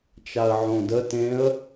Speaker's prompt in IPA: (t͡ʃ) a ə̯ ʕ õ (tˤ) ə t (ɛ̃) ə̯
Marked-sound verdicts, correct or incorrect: correct, incorrect: d, incorrect: ẽ

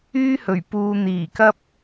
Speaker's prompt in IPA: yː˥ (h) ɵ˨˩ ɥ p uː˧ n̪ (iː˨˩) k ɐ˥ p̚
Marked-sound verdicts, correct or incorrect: correct, correct

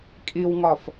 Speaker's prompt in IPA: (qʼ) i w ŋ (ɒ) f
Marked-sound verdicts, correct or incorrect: incorrect: kʼ, correct

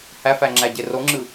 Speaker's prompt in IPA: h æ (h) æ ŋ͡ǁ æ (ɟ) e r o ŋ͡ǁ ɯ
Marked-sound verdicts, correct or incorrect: incorrect: f, correct

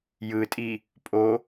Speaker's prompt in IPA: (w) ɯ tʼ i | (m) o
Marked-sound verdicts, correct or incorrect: incorrect: j, incorrect: pʼ

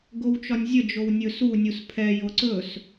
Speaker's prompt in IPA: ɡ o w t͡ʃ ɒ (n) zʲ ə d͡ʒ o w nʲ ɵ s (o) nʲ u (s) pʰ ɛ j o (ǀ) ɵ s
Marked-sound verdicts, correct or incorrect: incorrect: nʲ, incorrect: u, correct, correct

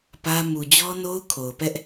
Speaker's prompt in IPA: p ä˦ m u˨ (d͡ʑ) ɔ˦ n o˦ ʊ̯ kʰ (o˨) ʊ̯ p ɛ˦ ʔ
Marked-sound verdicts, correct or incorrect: correct, correct

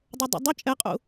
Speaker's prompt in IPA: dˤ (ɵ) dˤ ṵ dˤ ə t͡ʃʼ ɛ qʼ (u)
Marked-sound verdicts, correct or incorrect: correct, incorrect: ṵ

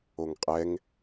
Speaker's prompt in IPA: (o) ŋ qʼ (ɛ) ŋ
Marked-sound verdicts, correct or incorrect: correct, correct

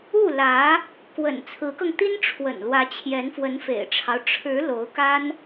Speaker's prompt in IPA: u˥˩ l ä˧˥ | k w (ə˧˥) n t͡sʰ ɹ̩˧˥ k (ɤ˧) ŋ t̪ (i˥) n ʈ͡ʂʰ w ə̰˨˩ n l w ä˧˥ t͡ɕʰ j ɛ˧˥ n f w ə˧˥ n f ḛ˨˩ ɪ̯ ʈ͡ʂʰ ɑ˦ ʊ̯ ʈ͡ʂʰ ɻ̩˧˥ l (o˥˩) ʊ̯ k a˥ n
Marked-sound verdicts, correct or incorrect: incorrect: ə̰˨˩, correct, correct, incorrect: o˧˥

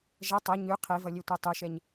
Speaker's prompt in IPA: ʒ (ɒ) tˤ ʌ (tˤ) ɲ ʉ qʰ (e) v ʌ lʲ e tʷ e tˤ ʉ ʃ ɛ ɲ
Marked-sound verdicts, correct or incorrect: incorrect: ʌ, incorrect: none, correct

